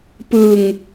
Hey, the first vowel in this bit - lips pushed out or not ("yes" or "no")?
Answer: no